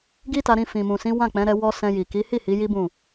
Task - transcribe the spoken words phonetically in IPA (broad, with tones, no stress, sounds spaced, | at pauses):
ɡ i˦ t a˧ ɾ ĩ˧ f ĩ˨ m ũ˨ s ĩ˨˦ w ã˦˨ k͡p ɛ̃˨˦ ɾ ɛ˧ w ɔ˧ s ɛ̃˧ j i˨ k i˨˦ h i˦˨ h i˨˦ j i˦ b ũ˦˨